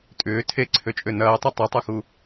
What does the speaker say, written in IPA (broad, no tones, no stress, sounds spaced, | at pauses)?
tʼ ʏː tʰ e ǀʰ ø t͡ʃʼ ø n ɐː tˤ ɐ tˤ e tˤ u x u